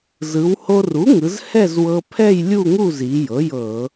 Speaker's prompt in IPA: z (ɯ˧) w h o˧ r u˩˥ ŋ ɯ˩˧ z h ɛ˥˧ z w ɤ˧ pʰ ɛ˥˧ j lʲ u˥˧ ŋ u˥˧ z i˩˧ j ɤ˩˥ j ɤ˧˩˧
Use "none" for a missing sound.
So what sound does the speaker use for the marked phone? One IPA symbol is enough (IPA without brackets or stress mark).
ɯ˩˧